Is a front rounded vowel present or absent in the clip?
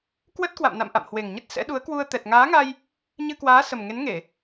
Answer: absent